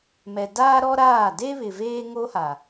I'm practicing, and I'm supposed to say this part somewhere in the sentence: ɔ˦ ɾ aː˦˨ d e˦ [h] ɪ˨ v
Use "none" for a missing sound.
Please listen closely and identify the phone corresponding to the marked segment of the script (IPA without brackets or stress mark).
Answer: β